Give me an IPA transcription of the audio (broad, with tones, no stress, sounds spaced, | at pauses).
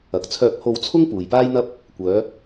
ɐ˨ k̚ t͡sʰ œː˧ k̚ h o˧ w t͡sʰ ʊ˥ ŋ p uː˨ j p aː˥ j n̪ ɐ˥ p̚ | kʷ œː˨˧